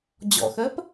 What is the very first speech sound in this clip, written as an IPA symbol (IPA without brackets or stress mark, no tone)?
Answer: d͡ʑ